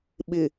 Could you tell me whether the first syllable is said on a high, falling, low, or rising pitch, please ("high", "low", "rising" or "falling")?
low